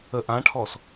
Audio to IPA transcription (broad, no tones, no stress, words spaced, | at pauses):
ə ʔãʈʰɔs